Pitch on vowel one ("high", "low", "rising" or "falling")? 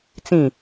falling